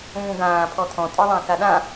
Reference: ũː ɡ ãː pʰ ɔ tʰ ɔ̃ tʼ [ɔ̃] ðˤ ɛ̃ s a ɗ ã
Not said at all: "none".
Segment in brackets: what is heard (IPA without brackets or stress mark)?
ɔ